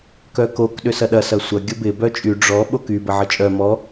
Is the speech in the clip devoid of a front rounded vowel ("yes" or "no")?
no